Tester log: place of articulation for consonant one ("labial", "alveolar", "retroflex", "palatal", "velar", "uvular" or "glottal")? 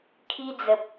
velar